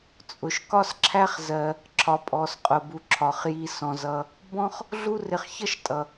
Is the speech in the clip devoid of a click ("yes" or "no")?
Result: no